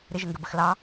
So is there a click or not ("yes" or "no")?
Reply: no